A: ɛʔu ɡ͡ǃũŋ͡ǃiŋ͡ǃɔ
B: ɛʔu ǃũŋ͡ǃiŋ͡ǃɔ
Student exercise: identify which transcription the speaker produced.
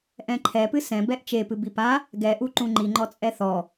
B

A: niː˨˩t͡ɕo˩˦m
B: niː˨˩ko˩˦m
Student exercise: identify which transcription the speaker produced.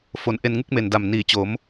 A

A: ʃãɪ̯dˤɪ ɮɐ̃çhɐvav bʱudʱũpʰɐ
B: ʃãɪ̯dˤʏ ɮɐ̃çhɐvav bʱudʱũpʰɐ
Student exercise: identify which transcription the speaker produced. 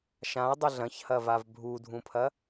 B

